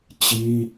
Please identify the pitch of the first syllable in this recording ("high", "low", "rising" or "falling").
high